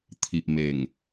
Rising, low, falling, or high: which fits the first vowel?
low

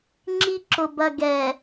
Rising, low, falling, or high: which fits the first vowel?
high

